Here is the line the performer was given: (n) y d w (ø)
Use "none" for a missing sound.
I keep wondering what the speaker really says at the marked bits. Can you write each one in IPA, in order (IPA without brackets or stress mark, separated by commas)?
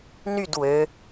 n, ø